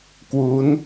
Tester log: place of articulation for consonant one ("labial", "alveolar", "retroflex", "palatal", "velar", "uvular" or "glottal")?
velar